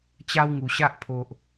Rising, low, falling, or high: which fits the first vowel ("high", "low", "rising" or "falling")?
high